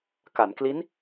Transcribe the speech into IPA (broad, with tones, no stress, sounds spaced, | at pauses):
k a˩˦ n k l i˦˥ n